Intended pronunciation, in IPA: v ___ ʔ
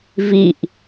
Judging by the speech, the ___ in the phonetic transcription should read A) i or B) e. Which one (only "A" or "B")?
A